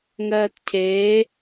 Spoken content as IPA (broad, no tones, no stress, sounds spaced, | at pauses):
ŋ ɜː t cʰ eː